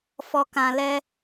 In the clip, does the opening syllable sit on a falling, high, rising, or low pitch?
low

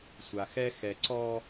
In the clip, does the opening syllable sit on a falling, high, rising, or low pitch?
low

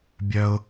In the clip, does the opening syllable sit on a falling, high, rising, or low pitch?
high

